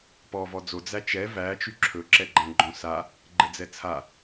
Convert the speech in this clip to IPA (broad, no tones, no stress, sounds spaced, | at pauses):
p ɔ v ɔ d͡z o d͡z æ t͡ʃ ɛ v æ t͡ʃ y ǁʰ ɵ ǁ ɛ ɡ͡ǃ æ̃ ɡ͡ǃ õ s a | ɡ͡ǃ ɘ d͡z ɛ t͡sʰ a